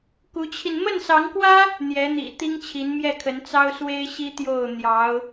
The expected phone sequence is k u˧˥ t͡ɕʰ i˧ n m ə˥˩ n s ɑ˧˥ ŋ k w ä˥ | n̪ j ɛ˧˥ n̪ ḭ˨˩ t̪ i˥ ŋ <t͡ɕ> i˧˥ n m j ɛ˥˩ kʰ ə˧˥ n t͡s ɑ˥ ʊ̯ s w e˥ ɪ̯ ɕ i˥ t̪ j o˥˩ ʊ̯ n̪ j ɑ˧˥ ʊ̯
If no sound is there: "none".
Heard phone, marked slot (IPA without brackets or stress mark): t͡ɕʰ